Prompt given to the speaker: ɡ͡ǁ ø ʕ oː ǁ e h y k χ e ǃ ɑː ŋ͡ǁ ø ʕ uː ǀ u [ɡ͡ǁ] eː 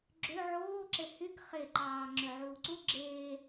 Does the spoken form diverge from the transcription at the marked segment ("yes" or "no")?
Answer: no